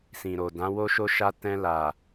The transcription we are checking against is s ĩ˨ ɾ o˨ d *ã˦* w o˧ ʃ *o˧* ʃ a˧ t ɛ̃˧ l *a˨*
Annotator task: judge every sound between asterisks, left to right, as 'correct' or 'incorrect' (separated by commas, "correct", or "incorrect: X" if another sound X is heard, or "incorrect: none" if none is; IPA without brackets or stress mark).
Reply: incorrect: ã˨˦, correct, correct